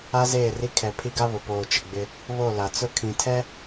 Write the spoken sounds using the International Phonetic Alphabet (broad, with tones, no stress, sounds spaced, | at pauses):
a˦ z eː˦˨ r i˦ kʰ ɛ˨ pʰ i˦ ɡ a˦ β ʊ˨ p oː˨ t͡ʃ ɪ˨ ɡ͡b ɪ˦ | β o˦˨ l a˨ t͡s ʊ˦ kʰ ĩ˨ tʰ ɛ˦